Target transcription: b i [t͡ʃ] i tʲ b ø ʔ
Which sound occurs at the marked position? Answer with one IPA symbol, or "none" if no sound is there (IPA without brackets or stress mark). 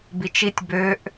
t͡ʃ